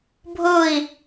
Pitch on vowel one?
falling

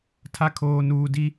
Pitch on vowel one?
low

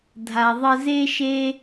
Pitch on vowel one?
low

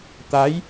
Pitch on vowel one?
rising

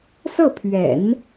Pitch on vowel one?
falling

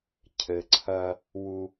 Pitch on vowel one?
low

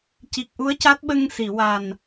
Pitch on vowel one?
low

